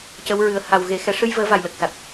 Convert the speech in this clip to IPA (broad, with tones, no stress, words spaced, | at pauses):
cə˧˥wɹɨ˨˩˦ə̯ ha˨˩wɣe˨˩˦ xɛ˨˩ʂɨ˧jvəː˨˩˦ va˨˩jlə˨˩k̚sa˨˩t̚